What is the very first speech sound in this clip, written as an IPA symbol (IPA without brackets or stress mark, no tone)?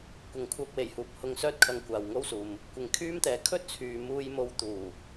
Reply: kʷ